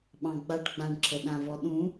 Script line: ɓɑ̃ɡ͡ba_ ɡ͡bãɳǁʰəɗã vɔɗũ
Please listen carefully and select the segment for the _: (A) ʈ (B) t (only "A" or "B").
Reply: A